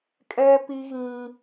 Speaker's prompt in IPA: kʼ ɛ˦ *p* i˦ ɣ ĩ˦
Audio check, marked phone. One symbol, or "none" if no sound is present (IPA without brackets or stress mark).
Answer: p